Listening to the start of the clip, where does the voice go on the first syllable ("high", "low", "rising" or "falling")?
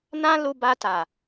high